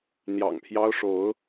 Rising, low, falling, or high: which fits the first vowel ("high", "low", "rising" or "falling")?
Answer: low